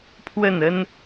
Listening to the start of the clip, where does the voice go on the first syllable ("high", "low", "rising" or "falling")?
falling